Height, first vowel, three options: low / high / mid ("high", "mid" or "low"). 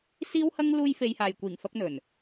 high